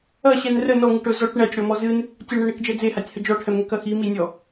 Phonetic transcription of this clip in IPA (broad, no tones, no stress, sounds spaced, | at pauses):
ɐ ɕ ɛ n r ə n ɔ ŋ ɨ ʈ ɵ z ɔ ʈ ɳ ɛ tʲ ɽ ɔ m ɔ z ɨ n | tʲ ə l ɳ ɛ ɳ e k d͡ʒ ɛ d͡z e h a tʲ h ə d͡ʒ ɔ ʈʰ ɛ m ŋ ɛ k ɐ x i m i nʲ ɔ